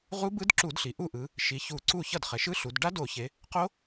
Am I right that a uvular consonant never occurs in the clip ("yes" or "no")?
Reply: no